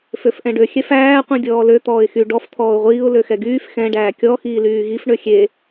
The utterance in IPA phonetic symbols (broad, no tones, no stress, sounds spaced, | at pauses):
f ø f ʔ ɛ̃ ɖ ø xʲ ɛ f æː qʷ ĩ dʲ ɔː l ø t̪ ɔː ɪ̯ x y ɖ ɔ f t̪ʰ ɔː ʊ̯ ʁʷ iː ʊ̯ l ø x ɛ ɡ yː f x ɛ̃ ɖ æː kʲ ɔ x iː l yː ɣ i f ɳ ø xʲ e